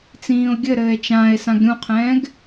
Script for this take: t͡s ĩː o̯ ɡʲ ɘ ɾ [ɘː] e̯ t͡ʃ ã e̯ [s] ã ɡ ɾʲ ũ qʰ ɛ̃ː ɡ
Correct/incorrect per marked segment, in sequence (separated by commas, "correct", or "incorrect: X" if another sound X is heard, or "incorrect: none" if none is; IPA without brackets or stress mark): correct, correct